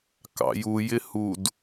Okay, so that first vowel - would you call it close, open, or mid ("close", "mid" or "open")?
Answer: open